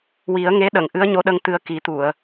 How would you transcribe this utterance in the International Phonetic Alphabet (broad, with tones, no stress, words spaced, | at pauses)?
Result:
wi˨˩˦ə̯ŋe˧˥ɗə˨˩˨ŋ ʔɨ˧˥ə̯ɲo˧˥ɗə˧ŋ t̪ɨ˧ə̯ki˨˩˦t̪u˨˩˨ə̯